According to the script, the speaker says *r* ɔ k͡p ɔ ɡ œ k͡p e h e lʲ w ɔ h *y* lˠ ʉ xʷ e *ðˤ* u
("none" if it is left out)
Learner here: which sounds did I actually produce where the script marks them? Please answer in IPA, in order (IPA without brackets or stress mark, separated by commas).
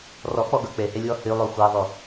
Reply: r, y, ðˤ